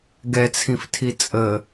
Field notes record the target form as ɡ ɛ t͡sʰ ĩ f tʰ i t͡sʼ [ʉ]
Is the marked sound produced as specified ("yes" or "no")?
no